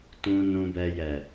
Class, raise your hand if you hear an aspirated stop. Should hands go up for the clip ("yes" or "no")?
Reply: no